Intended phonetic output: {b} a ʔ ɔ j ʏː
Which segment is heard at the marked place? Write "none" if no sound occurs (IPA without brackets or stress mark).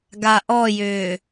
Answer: ɡ